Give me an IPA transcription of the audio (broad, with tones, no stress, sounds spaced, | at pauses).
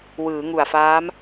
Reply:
w ɯː˩˦ ŋ u˨˩ a̯ f aː˦˥ m